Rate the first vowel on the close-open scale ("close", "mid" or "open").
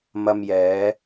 open